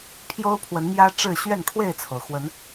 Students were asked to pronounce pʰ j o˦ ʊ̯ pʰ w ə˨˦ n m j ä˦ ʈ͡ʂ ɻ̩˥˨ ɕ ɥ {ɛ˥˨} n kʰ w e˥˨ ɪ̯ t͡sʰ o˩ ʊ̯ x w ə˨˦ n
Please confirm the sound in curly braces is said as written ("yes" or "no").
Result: yes